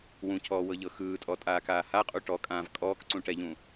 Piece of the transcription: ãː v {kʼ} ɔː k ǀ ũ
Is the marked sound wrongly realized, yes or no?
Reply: no